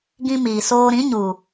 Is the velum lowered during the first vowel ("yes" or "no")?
yes